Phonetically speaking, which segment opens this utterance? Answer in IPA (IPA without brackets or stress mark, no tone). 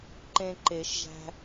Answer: ǃ